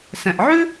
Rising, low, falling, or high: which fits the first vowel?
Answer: low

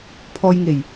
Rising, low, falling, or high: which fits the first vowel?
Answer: low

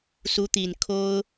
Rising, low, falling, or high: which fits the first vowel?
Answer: rising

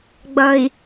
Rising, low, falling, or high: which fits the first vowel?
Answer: low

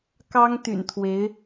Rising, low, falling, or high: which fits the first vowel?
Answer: high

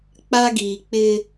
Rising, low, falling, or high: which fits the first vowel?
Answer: high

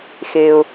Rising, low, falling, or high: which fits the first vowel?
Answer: low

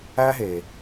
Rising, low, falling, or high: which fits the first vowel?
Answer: high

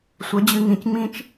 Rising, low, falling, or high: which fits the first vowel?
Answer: rising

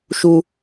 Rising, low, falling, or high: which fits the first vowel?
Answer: high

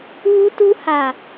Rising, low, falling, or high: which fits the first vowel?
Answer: high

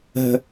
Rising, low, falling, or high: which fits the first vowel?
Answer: low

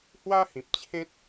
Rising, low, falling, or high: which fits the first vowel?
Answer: high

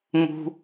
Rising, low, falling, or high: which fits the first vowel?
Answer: low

